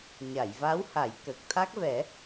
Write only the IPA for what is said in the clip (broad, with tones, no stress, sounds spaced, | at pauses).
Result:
ɲ a˨˩˨ j v a˧˥ w h a˨˩˦ j k ə˨˩ k̚ t̪ʰ a˦˥ k̚ v ɛ˨˩˦